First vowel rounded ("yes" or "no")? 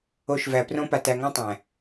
yes